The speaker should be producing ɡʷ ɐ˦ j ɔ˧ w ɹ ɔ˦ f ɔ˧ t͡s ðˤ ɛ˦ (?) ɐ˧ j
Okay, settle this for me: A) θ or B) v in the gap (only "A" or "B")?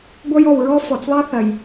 A